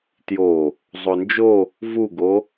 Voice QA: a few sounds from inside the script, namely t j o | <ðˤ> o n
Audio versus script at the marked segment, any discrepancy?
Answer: yes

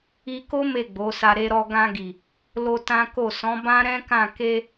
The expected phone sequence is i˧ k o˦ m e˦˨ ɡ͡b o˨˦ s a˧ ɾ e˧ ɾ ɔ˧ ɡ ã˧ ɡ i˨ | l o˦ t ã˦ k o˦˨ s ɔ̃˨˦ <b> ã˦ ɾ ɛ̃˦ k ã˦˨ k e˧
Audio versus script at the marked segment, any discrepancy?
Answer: no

